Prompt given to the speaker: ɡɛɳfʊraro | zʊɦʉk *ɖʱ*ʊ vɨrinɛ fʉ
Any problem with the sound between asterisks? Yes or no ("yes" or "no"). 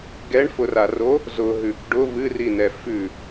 yes